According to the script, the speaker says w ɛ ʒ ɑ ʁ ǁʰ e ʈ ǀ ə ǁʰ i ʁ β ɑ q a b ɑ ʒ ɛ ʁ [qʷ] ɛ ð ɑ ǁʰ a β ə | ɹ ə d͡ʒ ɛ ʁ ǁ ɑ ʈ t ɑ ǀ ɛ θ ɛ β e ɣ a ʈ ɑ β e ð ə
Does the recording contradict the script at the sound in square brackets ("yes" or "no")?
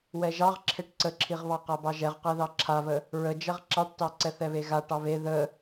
yes